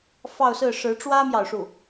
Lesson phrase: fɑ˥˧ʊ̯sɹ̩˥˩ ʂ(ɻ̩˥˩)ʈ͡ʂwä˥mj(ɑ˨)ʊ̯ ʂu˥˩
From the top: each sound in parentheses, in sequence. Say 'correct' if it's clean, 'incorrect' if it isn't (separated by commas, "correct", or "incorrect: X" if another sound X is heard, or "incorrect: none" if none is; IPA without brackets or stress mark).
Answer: incorrect: ɻ̩˧˥, correct